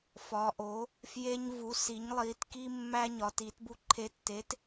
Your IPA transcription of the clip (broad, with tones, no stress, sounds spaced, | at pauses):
f ɒ˨˦ ʔ o˨˦ | f j e˦ ɲ v u˨˦ s i˨˦ ɲ lˠ i˨˦ t k i˦ mː æ˦ ɲ ɒ˨˦ t i˨˦ t b u˦ ǃʰ e˨˦ tː e˨˦ t